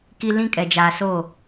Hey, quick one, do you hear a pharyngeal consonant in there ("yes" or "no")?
no